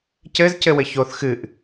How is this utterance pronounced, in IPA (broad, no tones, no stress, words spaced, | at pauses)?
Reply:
cɘz cɘwɘçoθ xɨʔ